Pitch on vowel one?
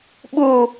falling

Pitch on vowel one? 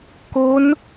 rising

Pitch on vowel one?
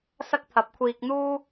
high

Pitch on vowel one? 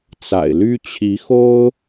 low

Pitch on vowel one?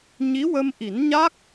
rising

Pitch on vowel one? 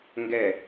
falling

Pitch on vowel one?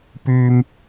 low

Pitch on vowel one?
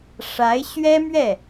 rising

